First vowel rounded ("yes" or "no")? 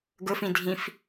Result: yes